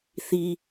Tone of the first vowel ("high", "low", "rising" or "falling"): low